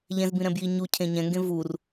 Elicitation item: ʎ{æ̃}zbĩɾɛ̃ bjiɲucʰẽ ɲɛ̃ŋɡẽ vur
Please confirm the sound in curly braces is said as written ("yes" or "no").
no